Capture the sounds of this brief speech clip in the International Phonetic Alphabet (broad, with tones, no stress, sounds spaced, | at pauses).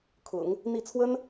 kʰ ʊ̰˨˩˦ ŋ | n̪ i˥˩ t͡sʰ w ə˥ n